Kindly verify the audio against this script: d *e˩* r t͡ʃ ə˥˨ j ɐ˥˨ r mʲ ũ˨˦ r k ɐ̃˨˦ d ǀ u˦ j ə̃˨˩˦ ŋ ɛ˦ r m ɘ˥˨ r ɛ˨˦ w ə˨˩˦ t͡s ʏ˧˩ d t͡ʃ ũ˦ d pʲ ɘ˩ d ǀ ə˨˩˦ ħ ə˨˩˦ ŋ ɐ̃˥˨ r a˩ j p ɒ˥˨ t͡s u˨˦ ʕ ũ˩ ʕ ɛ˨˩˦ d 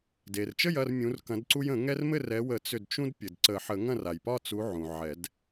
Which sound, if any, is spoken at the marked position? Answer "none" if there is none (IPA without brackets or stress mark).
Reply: e˩